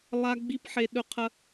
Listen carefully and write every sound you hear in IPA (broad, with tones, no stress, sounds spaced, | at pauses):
lˠ a˦ ɡ͡b i˦ p ħ e˧ ɗ ɵ˦ qʰ ɐ˦